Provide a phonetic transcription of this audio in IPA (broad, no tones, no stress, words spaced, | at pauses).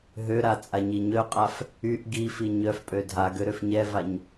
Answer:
ɦøɾa t͡sʼaɲiɲœqʼaf | yʔ ɡifi ɲœfpʼø dʱaɡø ɾøfɲɛvaɲ